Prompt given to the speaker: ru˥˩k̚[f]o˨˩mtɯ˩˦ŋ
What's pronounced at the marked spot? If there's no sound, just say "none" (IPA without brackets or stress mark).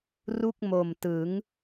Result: m